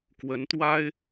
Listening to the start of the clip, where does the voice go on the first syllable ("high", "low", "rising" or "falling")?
rising